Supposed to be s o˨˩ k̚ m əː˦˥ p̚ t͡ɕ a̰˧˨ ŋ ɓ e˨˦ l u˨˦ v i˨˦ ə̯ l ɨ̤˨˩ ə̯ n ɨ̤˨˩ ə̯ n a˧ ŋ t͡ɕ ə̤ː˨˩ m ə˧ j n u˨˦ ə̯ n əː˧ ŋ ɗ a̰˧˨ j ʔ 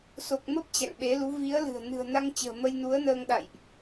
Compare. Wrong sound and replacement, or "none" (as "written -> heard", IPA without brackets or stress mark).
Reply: none